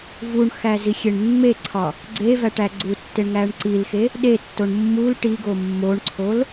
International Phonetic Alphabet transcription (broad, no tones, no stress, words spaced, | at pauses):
vuɳxæ zixʲeɳmːeǀʰɒ | ɡ͡ǀe væʈæɡ͡ǀutːeɳ ŋæɳǀilxe | ɗetːoɳ mːul ʈiɡo mːoɳǀʰol